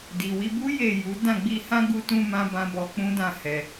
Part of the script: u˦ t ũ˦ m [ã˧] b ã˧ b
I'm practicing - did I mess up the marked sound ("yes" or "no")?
yes